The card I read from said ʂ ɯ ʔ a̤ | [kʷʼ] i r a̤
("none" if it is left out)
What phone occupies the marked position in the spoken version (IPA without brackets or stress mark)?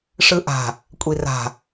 kʷʼ